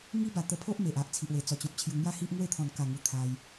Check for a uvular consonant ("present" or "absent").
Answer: absent